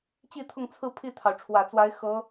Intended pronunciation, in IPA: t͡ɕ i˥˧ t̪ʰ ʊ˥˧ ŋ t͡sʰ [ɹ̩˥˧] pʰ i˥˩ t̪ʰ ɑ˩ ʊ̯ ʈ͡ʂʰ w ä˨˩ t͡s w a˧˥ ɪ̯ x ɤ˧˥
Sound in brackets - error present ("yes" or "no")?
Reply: no